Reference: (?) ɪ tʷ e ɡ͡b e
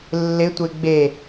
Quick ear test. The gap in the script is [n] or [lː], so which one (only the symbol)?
lː